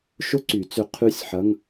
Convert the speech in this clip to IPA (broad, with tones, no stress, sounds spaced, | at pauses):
ʃ ʊ˥ ǀ y˨˩˦ t͡s ʏ˧ qʰ y˥˨ sʲ ħ ɐ˧˥˧ ŋ